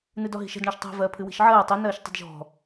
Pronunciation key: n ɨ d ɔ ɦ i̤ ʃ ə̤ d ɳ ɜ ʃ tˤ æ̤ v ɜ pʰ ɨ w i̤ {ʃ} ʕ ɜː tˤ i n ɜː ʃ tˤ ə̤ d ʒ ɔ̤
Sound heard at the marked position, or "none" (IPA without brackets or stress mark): ʃ